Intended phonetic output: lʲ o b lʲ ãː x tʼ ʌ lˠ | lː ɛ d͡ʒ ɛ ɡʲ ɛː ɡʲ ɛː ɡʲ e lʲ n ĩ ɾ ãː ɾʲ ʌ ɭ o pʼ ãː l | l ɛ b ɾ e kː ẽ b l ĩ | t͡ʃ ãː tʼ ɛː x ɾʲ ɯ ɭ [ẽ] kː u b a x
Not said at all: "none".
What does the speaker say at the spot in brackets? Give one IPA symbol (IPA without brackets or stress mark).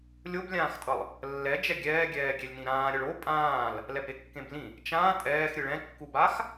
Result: ɛ̃